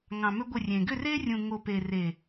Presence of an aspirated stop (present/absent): absent